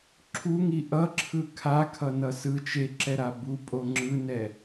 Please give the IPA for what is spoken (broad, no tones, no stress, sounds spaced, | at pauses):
ǁʰ u ŋ i ʔ ʌ ǁʰ ɯ kʰ a kʰ ʌ n ʌ s ɯ t͡ʃ e ǁ ɛ ɾ a b u pʼ o ŋ͡ǁ ɯ n ɛ